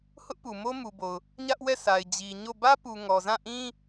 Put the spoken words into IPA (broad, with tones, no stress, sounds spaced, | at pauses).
h ʊ˦ ʔ p u˨ m o˦ m u˨ b o˨ ʊ̯ | ɲ ä˦ ʔ w ɛ˦˨ sʰ a˨ ɪ̯ d͡ʑ i˨ ɲ o˦˨ b ä˦ p u˨ ŋ ɔ˨ z ã˦˨ ʔ ĩ˦